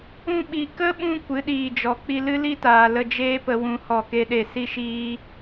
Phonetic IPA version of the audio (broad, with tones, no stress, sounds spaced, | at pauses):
ũ˧ ɓ i˨ k ə˦ ɓ ũ˧ kʷ ɨ˨˦ ɗ iː˨ d͡ʒ ɔ˨ k͡p i˧ l ɨ˦ l i˦ t aː˨ l ə˧ d͡ʒ eː˦ p ə˧ w ũ˧ h ɔ˦˨ k e˦ ɗ e˦˨ s i˦ ʃ iː˦